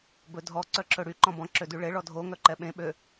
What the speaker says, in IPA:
b ɵ dʱ ɔ ǀ œ ǁ ɵ ɽ y ǃ ɔ̃ b ɔ̃ ǁ ø d y ɭ e ɭ ɔ dʱ o ŋ œ ǃ ɛ ɓ ẽ ɓ ø

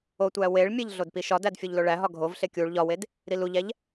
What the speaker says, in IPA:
o tʷ æ w e ɭ mʲ e ʎ ɮ o d p i ʃ ɒ d æ d fʲ u ʎ l o ɭ æ ɦ ɒ ɡʱ o v ɬ e kʲ u ɭ ʎ ɒ w e d | ɾ i l u ʎ æ ʎ

